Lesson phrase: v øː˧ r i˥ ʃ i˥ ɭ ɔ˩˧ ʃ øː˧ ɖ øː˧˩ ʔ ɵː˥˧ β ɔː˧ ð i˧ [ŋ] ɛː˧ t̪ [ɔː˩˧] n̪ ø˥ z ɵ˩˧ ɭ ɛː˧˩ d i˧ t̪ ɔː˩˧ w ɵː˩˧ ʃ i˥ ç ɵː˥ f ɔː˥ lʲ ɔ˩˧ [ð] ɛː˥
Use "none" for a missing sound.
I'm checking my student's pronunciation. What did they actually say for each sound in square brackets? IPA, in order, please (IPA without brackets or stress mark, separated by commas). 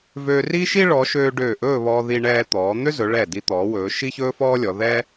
ɳ, ɔː˩˧, ð